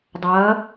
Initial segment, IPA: dˤ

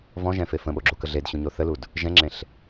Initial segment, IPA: v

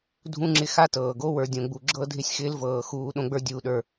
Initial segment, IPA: dʱ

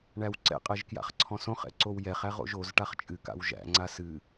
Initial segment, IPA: ɳ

